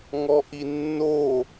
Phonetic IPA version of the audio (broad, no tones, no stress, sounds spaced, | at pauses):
ŋ ɔ ʔ i nː o